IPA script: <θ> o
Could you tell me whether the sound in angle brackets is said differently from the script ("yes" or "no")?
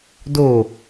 yes